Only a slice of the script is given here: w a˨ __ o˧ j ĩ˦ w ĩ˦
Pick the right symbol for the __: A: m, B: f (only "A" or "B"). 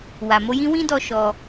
A